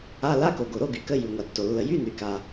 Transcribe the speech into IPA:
a˧˥˧ l a˧˥˧ k o˩ ɡ o˩ ɾ o˧˥˧ ɡ y˩ k ə˧˥˧ j y˩ ŋʷ a˩ tː o˩ lː ə˩ j y˧˥˧ n y˩ k a˩

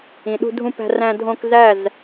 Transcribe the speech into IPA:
ĩ˨ ɗ ṳ˧ dʱ ũ˧ p æ̤˧ r æ̃˧ dʱ õ˧ k z æ˦˨ z

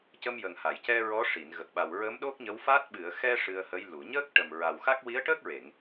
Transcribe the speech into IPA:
c ə˧ m j ə˨˩ ŋ h a˨˩˨ j c ɛ˧ ɹ ɔ˧˥ ʂ i˨˩˨ n ɣ ə˨˩ k̚ ɓ a˨˩ w ɹ ə˧˥ m ɗ o˦˥ k̚ ɲ ə˧˥ w f a˦˥ t̚ ɓ ɨ˨˩˨ ə̯ x ɛ˧ ʂ ɨ˧ ə̯ h ə˧˥ j l u˨˩˨ ɲ əː˦˥ k̚ ʈ ə˨˩ m ɹ a˨˩ w x a˦˥ k̚ w i˧˥ ə̯ ʈ əː˦˥ k̚ ɹ e˨˩˨ ŋ

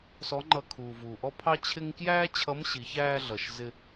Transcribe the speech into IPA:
s ɔ˧˥ ŋ͡ǃ ʌ˧ kʰ uː˩ v uː˩ ʔ ɔ˥ pʰ ɑ˥ t͡ɕʰ ɪ˥ ŋ k j æː˥ t͡ɕʰ ʌ˧˥ m ɕ i˩˧ ç æː˧ ɮ ʌ˩ ʃ z ɪ˧

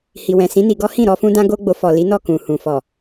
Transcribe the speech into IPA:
h i˨ w ɛ̃˨ s ĩ˨˦ n i˧ ɡ ɔ˦ h ĩ˦˨ ɾ ɔ˧ f ũ˦ d ã˦ ɡ o˦ ɡ͡b o˧ f ɔ˨ l i˨˦ n ɔ˦˨ k ũ˨ h ũ˨ f ɔ˨

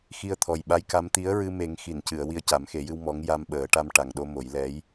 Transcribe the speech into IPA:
x i˧ ə̯ t̪ʰ ɔ˨˩ j ɓ a˧˥ j k a˧˥ m t̪ i˧˥ ə̯ ɹ ɨ˧ m e˨˩˦ ŋ x i˨˩˨ n c ɨ˨˩˨ ə̯ w i˧ ə̯ c a˨˩˦ m x e˨˩˦ j ɨ˧ w m ɔ˧˥ ŋ j a˧ m ɓ əː˨˩˦ ʈ a˧ m ʈ a˨˩ ŋ ɗ o˧ m o˨˩˦ j l ɛ˧˥ j

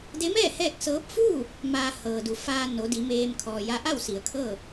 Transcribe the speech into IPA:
d e˧˥ m ɛː˥˨ h ɛː˥˨ k̚ s ɤː˧˥ p̚ f uː˥˨ | m aː˧ h ɤː˩ d u˩˧ f aː˧ n o˩˧ d i˩˧ m eː˧ m kʰ ɔː˩ j a˧ ʔ a˥˨ w s i˩˧ ə̯ kʰ ɤː˥˨

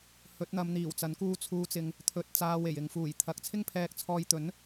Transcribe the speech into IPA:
h ɵ˨˥ t̚ n̪ ɐ˨˧ m n̪ iː˨˩ w t͡s ɐ˨˥ n k uː˧ t͡sʰ uː˨˧ t͡s ɪ˨ ŋ | t̪ʰ ɵ˧ t̚ t͡s aː˧ w e˨˩ j ɪ˨ ŋ f uː˨˩ j t̪ʰ ɐ˨˥ k̚ t͡sʰ ɪ˥ ŋ pʰ ɛː˧ k̚ t͡sʰ ɔː˧ j t̪ ɵ˨˥ n

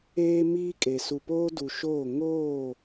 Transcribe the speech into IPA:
eː˦ m iː˦ kʼ e˨ s u˨ p oː˦ d u˨ ʃ oː˦˨ ŋ oː˦˨

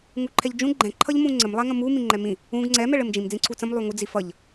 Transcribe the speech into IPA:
ŋ u ǃʰ ɛ ʎ d͡ʒ ũ ɡ͡ǃ ɛ̃ ǃʰ ʌ ʎ m ũ ŋ͡ǀ ɘ m lˠ ɛ ŋ ə̃ m u m ĩ ŋ͡ǃ ɛ m ĩ | ũ ɡ ŋ͡ǀ ɛ m ɛ ɭ ɘ m d͡ʒ ĩ m d͡z ĩ ǀʰ u t͡s ə̃ m lˠ u ŋ u d͡z i f ʌ ʎ

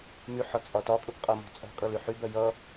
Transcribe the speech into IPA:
m y ħ ɒ t͡sʼ ɒ t ɒ kʼ u ɡ qʼ ʌ m ɔ̤ t͡sʼ ɔ̤ kʼ ʌ l y ħ y b ɜ j ʌ

